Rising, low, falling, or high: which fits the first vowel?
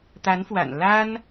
rising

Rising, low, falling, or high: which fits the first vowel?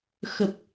low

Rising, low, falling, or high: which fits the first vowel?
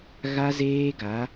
high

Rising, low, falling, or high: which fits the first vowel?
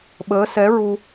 rising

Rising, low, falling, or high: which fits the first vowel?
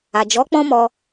low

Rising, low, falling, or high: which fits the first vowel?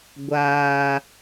high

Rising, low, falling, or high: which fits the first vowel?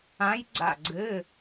rising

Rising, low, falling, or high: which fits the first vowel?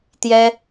high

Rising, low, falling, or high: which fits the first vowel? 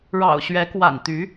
low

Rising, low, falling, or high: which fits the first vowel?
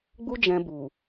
high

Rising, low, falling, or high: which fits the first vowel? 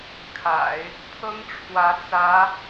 low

